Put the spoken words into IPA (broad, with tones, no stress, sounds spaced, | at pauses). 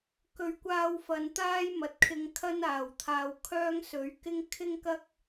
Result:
k ɵ˨˧ ɥ kʷ aː˧ w f ɐ˨ n t̪ aː˥ j m ɐ˨ t̚ kʰ ɪ˧ ŋ kʰ ɐ˥ n aː˨˩ w t̪ʰ aː˨ w kʰ œː˥ ŋ s ɵ˨˥ ɥ k ɪ˥ ŋ kʰ ɪ˥ ŋ k ɐ˥ k̚